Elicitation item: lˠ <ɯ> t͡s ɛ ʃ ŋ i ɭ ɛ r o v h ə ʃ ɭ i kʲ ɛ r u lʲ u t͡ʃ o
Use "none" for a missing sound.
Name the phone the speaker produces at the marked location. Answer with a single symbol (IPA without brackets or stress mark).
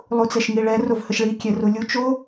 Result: u